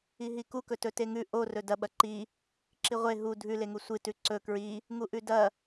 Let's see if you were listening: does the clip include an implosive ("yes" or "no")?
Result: yes